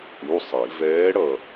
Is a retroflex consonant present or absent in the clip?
present